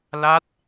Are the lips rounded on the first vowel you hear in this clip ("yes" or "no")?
no